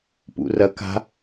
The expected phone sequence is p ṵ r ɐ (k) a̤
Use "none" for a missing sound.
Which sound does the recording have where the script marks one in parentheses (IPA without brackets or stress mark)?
k